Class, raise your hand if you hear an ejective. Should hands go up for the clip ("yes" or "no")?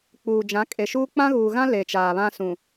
yes